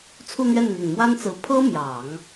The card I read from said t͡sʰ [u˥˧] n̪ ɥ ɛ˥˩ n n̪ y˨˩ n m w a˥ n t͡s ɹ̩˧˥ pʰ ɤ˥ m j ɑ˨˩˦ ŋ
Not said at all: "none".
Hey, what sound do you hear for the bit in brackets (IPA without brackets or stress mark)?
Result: u˥˧